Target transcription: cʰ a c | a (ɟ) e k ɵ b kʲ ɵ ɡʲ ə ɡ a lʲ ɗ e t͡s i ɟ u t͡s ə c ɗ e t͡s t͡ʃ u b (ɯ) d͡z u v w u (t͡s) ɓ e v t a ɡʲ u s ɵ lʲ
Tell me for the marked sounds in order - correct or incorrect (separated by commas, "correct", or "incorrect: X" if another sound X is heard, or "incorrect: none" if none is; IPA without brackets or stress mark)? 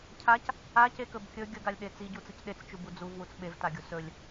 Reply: incorrect: c, incorrect: u, correct